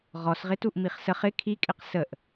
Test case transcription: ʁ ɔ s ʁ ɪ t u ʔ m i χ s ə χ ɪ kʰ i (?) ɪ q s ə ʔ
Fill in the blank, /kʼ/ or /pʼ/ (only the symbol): kʼ